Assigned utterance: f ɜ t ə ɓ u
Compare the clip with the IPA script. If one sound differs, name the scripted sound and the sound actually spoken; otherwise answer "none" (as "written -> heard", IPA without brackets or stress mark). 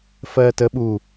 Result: none